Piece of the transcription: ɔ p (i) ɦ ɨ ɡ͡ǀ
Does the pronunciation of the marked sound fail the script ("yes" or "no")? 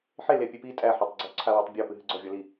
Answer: yes